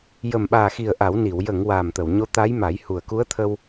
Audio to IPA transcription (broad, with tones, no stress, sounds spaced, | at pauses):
j ə˨˩ m ɓ aː˨˩ x i˨˩ ə̯ ʔ a˨˩˦ w n i˨˩˨ w j ə˨˩˨ ŋ w aː˨˩ m t̪ ə˨˩˨ w ɲ o˧˥ t̪ a˧˥ j m a˨˩˦ j h u˨˩ ə̯ k u˧˥ ə̯ t̪ʰ ə˧ w